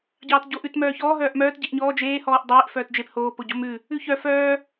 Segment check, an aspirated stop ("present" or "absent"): absent